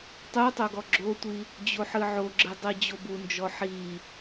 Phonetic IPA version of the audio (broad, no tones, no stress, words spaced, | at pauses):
tˤutˤo ɡɔɡ͡ǁotʷi | d͡ʑoħɨʕoɡ͡ǁɨ dˤid͡ʑobund͡ʒɔ ħi